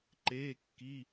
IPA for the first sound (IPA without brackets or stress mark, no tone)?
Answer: ǃ